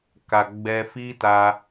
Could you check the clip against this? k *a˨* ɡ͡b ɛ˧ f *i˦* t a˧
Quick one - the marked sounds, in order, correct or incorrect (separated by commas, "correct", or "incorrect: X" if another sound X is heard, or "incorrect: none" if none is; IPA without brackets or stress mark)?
correct, correct